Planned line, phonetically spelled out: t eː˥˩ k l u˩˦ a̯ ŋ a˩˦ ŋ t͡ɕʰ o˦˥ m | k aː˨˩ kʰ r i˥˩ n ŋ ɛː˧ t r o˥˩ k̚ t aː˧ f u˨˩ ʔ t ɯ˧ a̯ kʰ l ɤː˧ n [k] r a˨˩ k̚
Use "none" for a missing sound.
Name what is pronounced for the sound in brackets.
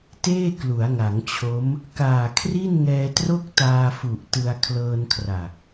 kʰ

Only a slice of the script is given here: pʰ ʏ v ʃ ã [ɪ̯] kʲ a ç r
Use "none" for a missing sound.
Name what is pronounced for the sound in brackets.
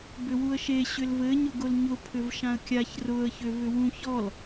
ə̯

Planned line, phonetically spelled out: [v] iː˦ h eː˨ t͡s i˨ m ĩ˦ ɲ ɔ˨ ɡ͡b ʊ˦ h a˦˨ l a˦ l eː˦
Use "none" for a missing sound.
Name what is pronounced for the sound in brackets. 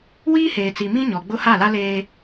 w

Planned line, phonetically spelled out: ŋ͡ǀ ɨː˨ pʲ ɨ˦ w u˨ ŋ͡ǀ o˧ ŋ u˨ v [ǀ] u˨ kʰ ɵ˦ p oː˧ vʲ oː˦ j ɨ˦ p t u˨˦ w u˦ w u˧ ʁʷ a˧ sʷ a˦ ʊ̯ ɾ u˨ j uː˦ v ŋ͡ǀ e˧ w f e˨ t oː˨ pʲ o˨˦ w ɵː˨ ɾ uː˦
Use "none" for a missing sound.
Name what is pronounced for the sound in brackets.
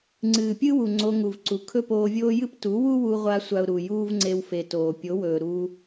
ǀ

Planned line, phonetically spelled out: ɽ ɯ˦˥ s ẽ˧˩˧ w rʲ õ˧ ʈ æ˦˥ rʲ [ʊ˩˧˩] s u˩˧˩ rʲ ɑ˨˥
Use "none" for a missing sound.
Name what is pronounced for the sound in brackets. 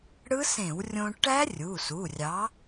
u˩˧˩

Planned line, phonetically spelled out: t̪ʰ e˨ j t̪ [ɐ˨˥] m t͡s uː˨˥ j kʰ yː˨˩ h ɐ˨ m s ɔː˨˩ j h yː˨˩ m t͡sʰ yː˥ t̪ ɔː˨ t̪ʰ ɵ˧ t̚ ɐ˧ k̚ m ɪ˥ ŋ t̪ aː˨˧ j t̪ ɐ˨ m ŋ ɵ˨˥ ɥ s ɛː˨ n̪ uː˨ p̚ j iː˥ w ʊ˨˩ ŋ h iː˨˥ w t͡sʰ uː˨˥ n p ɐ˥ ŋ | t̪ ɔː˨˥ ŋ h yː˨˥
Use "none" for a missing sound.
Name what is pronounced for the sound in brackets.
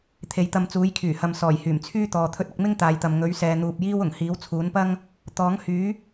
ɐ˧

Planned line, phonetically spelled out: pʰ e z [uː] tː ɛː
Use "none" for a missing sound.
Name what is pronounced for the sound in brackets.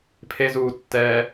uː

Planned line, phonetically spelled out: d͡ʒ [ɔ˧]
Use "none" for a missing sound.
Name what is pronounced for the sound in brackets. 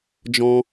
ɔ̃˧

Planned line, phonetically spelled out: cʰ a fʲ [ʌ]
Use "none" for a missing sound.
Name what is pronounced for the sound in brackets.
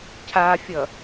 ʌ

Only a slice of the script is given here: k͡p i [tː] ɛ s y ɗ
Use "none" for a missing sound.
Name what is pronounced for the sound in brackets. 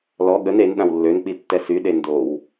tː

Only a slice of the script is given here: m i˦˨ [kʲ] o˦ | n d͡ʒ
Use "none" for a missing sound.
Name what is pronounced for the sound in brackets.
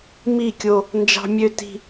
kʲ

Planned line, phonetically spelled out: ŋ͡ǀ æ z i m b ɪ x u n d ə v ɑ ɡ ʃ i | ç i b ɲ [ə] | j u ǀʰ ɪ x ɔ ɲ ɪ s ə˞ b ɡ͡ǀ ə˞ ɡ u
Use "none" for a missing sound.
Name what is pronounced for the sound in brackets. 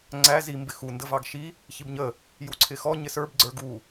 ə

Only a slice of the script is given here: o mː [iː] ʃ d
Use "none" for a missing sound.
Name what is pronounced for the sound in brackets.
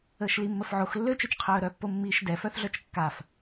iː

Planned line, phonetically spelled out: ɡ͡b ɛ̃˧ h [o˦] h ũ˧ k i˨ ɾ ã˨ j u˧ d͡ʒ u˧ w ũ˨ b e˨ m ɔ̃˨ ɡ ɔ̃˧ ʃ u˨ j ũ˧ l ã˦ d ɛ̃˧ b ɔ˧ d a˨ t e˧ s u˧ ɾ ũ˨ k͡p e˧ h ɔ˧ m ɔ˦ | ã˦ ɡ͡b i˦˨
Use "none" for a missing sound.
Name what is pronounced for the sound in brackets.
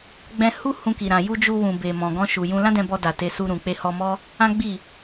u˦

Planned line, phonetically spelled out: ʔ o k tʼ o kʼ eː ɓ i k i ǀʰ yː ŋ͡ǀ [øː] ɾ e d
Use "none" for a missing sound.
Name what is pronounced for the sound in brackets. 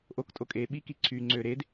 øː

